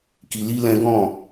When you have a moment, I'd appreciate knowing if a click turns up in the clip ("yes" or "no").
no